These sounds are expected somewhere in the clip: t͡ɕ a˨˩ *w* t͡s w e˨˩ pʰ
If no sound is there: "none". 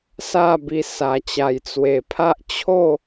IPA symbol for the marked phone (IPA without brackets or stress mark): j